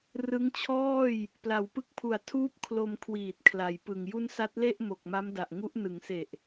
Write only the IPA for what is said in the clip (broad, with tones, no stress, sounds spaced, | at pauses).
r ɯ˦˥ ŋ t͡ɕʰ ɔː˥˩ j | p l a˩˦ w p ɯ˦˥ k̚ pʰ u˨˩ a̯ tʰ uː˦˥ p̚ kʰ l o˧ m kʰ w iː˨˩ t̚ kʰ l a˩˦ j p ɯ˨˩ ŋ j u˥˩ n s a˦˥ t̚ l e˥˩ ʔ m o˨˩ k̚ m a˦˥ m d a˨˩ ʔ ŋ u˦˥ ʔ n ɯ˩˦ ŋ s e˨˩ ʔ